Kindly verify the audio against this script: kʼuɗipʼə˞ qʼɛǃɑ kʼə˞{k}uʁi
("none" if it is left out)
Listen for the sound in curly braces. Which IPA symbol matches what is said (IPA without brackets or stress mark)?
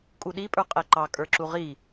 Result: ǁ